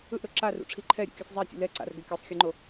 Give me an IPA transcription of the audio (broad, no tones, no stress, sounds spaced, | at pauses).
ɯ ʔ ɾ o ǁ a r ṵ ʈ͡ʂʰ i ǃʰ ɛ ɾʲ ṵ kʲ ɯ sʲ zˤ a tʲ ṵ l ɛ ǀ a̰ r ɡ ɛ kʲ o sˤ xʲ ɯ ŋ͡ǃ o